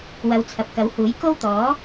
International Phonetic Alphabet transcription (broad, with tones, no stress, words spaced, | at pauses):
wɐ˨˧wt͡sʰɐ˨p̚kɐ˨˥whuː˨˥j ko˥wt̪ɔː˨˥